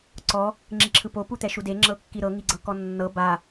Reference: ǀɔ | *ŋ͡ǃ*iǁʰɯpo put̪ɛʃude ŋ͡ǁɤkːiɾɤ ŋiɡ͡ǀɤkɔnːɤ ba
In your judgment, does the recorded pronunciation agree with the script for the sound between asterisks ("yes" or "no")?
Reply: no